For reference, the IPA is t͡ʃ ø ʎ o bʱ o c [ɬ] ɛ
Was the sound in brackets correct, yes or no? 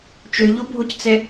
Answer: no